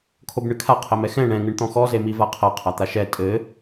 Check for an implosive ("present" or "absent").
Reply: absent